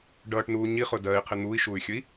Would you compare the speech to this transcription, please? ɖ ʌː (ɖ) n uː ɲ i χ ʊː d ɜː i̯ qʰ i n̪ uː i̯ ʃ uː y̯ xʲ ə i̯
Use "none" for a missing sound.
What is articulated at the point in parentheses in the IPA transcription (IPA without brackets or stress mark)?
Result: ʈ